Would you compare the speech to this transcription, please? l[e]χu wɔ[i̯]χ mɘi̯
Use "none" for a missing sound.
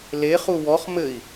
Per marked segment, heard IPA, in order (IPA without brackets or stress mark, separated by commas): e, none